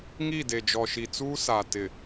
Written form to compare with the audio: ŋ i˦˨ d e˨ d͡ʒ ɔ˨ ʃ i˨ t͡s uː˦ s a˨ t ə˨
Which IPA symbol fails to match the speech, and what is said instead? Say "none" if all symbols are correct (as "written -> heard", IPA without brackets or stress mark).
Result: ə˨ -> ɪ˨